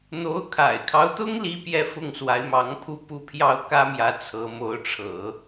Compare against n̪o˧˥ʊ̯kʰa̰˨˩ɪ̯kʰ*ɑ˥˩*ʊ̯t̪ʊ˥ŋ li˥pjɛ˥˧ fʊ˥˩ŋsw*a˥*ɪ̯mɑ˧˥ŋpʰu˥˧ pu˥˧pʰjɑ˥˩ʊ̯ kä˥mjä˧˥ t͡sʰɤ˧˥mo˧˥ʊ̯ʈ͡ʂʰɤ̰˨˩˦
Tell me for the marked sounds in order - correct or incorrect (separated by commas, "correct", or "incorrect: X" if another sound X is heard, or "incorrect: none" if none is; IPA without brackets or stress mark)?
incorrect: ɑ˦, incorrect: a˧˥